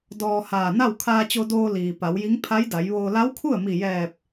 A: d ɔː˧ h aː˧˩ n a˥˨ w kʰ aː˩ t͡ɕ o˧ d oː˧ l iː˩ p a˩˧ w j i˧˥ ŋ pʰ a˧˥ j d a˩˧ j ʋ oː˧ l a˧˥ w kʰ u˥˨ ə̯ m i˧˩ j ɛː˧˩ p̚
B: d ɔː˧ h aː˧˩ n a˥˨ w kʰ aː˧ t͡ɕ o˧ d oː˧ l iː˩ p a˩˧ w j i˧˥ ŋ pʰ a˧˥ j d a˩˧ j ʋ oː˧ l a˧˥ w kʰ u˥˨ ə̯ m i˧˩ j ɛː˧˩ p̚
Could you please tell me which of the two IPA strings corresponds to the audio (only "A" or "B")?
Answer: B